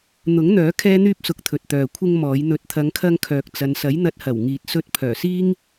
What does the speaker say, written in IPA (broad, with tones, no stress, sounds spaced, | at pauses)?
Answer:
n̪ ʊ˨˥ ŋ n̪ œː˨˥ kʰ ɛː˥ n̪ yː˥ p̚ s ʊ˨˥ k̚ t̪ʰ ɵ˨ t̚ t̪ œː˨ kʷʰ ɪ˥ ŋ m ɔː˨˥ j n̪ ɵ˨ t̚ t̪ʰ ɐ˨˧ ŋ kʰ ɐ˧ ŋ kʰ œː˨ k̚ t͡s ɐ˨ n s ɐ˨˥ j n̪ ɐ˧ t̚ h ɐ˨˩ w ŋ iː˨ t̚ s ɵ˧ t̚ pʰ œː˨˩ s iː˥ ŋ